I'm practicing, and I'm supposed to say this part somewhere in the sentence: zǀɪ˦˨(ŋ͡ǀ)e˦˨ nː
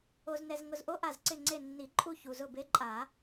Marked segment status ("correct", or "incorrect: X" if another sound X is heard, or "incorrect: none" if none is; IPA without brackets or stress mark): correct